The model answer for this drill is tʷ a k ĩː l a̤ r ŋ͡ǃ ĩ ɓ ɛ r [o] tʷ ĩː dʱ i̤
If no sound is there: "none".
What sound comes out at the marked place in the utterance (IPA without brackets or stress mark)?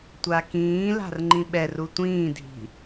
u